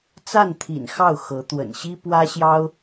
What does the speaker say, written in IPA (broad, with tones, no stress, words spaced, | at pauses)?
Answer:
t͡sa˥˩nt̪ʰḭ˨˩n xɑ˥˩ʊ̯xɤ˧˥ t̪wə̰˨˩nɕi˥ pwä˥ɕjɑ˥ʊ̯